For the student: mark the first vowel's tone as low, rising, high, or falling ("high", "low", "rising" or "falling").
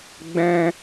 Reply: high